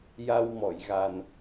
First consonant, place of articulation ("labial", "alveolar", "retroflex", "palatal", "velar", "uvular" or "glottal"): palatal